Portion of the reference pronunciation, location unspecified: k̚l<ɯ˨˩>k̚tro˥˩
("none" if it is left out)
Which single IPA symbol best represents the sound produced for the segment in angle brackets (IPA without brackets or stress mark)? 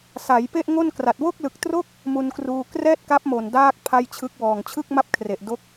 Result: ɯ˨˩